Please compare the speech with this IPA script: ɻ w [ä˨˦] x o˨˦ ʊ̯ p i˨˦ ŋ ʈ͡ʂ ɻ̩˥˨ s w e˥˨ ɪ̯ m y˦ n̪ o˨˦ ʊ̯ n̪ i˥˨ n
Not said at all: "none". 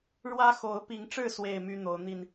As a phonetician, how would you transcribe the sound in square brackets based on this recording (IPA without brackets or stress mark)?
ä˦